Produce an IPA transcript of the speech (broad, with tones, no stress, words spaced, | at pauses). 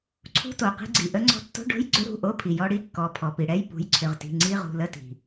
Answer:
ǀʰṳ˧˥˧to˩ qi̤˧ɡ͡ǀi˩ ʔə˧ŋ͡ǀɔ̤˧ tːo̤˧˥˧ɖo̤˧˥˧jɡ͡ǀʏ˧˥˧ɾṳ˩˧˩ ʔo˧˥˧pʰi˩jɔ˧ ɽi˧˥˧kːɔ˩˧˩ pʰɔ˩pi˩ɽɛ˧˥˧j pṳ˩˧˩jǀʰʏ˩˧˩ʁti̤˩˧˩ ŋ͡ǀi˧˥˧ʁṳ˩˧˩ lə˧˥˧ti̤˩